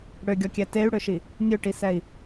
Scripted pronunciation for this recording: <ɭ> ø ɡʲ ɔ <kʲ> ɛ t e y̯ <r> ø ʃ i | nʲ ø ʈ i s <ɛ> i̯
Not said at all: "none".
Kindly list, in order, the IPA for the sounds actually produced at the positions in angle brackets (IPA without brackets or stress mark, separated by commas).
ɽ, kʲ, ɽ, ɛ